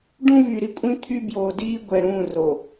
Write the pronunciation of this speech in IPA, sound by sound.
ɖ ũ˦ v y˨ ɾ i˨ kʷʼ ĩ˦ t̪ʰ y˦ b j oː˨ d iː˦ ɡʷ ɛ˨ ɾ ũː˦˨ r o˨

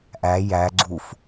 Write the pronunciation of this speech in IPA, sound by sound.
ʔ æ j æ ɡ͡ǀ u f

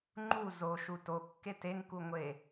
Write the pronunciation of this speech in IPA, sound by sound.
ŋ͡ǃ u z o ʃ u t o kː e t e ŋ k u ŋʷ e

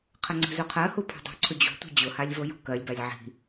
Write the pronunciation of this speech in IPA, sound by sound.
qʰ ə ŋ͡ǀ ə̤ z u qʰ ɜ h u pʰ o̤ dˤ o̤ ǀʰ ʊ d͡ʑ o̤ tʷ i̤ d͡ʑ ʊ h a lʲ v o j o̤ k ɜ lʲ b a lʲ ʕ i̤

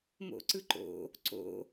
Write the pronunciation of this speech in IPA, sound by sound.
m o̰ ǀ ɯ ǃ o̰ | ǀ o̰

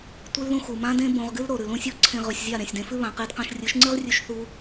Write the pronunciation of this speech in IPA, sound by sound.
tʷ ɨ˦ l ð ũ˦ x u˨ m ã˦ d ẽ˦ b õ˧ ʁ ɡ ɨ˦ l ɾ o˨ ɾ ʉ˨ l ũ˧ sʲ o˦ ǀʰ ẽ˧ ʁ ʉ˨ sʲ zʲ a˦˨ ɾ ẽ˨ sʲ d ẽ˧ f ʉ˦ β ã˨ q e˧ d q ã˧ ʃ rʲ ɨ˨˦ ʃ ŋ͡ǀ ɨ˦ ʁ rʲ ʉ˧ ʃ θ u˧

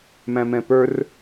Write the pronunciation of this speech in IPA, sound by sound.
m æ̃ m ɛ̃ p ə˞ r

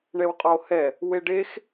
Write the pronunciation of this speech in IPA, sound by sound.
ɳ ɛ w qʼ ɒ o̯ h ɛ | w e ɖ e x

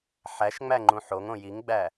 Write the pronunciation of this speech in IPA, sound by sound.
ħ æ ʃ ŋ͡m æ ŋ͡ǃ ũ ħ o ŋ õ j i ŋ ɡ͡b æ

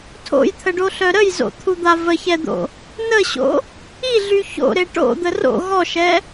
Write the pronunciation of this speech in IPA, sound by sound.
tʰ o̰ j t̪ʰ ə ɖ o ɬ œ ɾ ə j z o̰ t̪ʰ u d̪ a v ə ç ɛ d̪ o̰ | n ə ɕ o̰ | i ɮ y ç o̰ ɾ e ʈ o̰ d̪ ə r o̰ ɣ ɔ ʃ ɛ

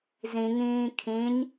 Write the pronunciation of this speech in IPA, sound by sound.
z ĩ ŋ ĩː kʰ ĩ ɲ

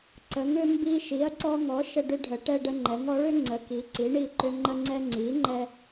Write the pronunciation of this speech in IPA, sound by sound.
ǀ ə˩˥ ŋ ʏ˦ m b i˦ ʃ i˩˥ ɐ̯ ǀ ɔ˦ ŋ ɔ˩˥ ʃ ə˦ ɖ ʏ˦ ɖʱ ə˩˥ ʈ ɛ˦ ɖ ə˦ ŋ͡ǃ ɛ˩˥ ŋ ɔ˩˥ ɭ ʏ˩˥ ŋ͡ǀ ə˩˥ k i˩˥ ǀ i˩˥ ɳ i˦ ǃ ʏ˦ ŋ͡ǃ ə˦ ŋ͡ǀ ɛ˦ ŋ͡ǀ i˩˥ ŋ͡ǃ ɛ˦

